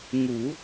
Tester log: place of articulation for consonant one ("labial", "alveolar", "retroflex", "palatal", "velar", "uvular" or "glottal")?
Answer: velar